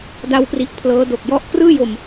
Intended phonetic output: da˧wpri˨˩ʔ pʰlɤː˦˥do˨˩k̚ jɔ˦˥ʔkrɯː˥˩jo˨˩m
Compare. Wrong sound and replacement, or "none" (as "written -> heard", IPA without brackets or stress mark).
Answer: none